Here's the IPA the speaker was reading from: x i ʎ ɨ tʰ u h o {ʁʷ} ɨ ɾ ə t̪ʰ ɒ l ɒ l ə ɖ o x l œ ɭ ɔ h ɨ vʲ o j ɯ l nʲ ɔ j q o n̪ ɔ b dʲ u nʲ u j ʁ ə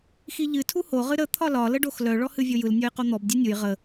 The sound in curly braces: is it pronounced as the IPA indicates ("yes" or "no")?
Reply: no